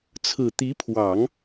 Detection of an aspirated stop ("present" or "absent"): present